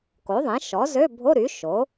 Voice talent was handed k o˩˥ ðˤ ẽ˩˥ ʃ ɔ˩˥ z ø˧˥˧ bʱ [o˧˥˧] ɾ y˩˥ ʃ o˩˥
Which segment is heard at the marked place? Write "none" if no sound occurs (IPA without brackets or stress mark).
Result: o˧˥˧